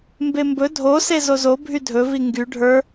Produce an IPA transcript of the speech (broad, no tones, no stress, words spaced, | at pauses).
mbembɵ dʱose zozo bʱydʱɵvi ŋɡy ɖʱə˞